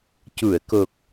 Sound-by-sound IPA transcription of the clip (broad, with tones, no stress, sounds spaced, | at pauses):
c u˨˩˨ ə̯ k o˨˩ k̚